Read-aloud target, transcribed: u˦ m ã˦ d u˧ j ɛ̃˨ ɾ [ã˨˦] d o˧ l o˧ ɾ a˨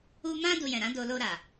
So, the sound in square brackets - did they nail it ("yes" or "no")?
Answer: yes